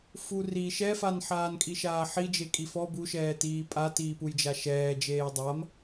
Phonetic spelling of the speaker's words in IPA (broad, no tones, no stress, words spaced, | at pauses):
furi ʃɛfan ħaːnkʼiʃaːħi d͡ʒekʼifɔ buʃɛː tiːpʼa tiːpujd͡ʒaʃɛː d͡ʒeːjdˤam